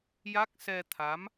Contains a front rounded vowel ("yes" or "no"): no